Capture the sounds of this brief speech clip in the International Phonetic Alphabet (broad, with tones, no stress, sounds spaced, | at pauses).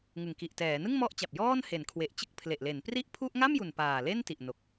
ŋ ɯ˨˩ ŋ k i˨˩ ʔ t ɛː˩˦ n ɯ˥˩ ŋ m ɔ˦˥ ʔ t͡ɕ a˨˩ p̚ j ɔː˥˩ n h e˩˦ n kʰ w e˨˩ ʔ t͡ɕ ɯ˥˩ k̚ pʰ l e˨˩ ʔ l e˩˦ n p r i˥˩ ʔ pʰ u˥˩ ʔ ŋ a˥˩ m j u˨˩ n p aː˨˩ l e˥˩ n t i˨˩ ʔ n o˨˩ k̚